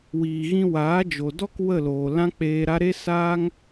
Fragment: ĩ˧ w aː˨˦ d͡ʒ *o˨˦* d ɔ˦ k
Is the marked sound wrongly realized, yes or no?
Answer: yes